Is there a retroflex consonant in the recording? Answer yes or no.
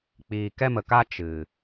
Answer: no